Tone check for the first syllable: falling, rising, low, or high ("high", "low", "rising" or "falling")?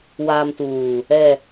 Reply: low